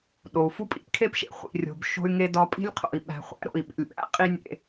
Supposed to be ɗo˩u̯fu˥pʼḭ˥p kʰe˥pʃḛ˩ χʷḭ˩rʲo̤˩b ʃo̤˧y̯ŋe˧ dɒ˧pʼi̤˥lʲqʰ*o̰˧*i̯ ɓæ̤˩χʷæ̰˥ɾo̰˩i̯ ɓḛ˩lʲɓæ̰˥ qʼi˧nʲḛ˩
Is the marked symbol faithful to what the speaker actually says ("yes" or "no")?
no